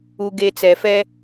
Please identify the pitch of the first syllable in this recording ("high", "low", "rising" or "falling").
low